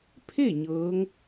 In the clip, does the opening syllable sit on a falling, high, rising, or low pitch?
falling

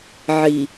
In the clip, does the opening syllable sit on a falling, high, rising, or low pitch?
low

